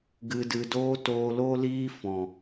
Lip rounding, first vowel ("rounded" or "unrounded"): unrounded